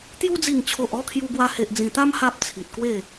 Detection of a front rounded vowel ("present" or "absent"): absent